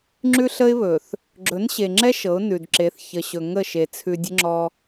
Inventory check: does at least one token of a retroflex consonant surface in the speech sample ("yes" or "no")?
no